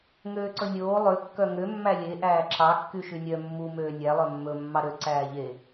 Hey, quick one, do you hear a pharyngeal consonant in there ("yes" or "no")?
no